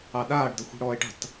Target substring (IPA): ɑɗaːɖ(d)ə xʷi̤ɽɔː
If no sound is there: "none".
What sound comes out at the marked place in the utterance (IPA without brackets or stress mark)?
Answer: d